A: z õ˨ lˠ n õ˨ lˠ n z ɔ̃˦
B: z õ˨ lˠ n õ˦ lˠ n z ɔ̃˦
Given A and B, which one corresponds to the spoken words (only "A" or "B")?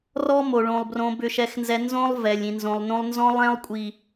B